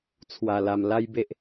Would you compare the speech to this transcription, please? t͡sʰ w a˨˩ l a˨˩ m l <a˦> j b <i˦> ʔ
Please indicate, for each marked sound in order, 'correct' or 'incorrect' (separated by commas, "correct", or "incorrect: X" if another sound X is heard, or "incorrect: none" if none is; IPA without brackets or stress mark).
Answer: correct, incorrect: e˦